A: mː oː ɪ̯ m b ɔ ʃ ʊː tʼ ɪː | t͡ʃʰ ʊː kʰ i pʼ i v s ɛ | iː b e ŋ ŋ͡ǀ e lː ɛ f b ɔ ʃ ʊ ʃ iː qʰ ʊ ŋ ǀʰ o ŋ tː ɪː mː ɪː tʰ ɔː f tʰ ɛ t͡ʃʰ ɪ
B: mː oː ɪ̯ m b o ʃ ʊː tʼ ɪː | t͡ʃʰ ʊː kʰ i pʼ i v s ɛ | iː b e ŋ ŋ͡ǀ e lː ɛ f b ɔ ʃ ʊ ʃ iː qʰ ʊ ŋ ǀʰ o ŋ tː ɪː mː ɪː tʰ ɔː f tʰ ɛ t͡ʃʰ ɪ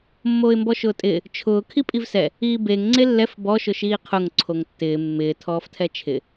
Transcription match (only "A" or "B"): A